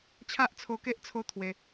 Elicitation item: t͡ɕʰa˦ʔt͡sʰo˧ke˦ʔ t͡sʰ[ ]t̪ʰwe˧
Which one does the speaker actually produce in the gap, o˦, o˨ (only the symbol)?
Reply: o˦